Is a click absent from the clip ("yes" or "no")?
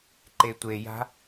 no